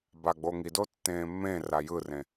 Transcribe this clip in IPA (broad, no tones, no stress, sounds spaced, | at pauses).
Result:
b a ɡ͡b o ŋ i d o tː ẽː mː ẽ r a j ɯ r ẽ